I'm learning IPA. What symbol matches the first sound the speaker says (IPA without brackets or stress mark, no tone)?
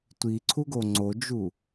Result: tʷ